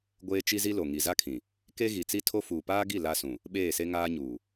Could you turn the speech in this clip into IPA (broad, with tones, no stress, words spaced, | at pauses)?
ɡʷeː˦t͡ʃi˦zi˦lo˨ ŋi˨za˦kʰĩ˨ | ke˦ɣi˨t͡si˦tʰo˦ fuː˨paː˦ɡi˦˨ la˦sũ˨ | ɓeː˦˨se˦ŋaː˦ɲuː˨